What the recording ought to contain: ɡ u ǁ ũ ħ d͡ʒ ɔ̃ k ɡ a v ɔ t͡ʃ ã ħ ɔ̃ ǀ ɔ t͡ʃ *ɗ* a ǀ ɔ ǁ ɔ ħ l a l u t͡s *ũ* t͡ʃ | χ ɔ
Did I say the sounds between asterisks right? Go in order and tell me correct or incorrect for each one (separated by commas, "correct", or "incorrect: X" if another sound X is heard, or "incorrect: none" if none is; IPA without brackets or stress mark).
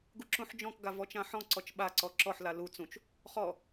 incorrect: ɓ, correct